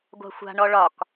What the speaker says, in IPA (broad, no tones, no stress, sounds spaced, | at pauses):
ɡʷ a̤ xʷ a̤ ɳ ɔ ɭ ɒ k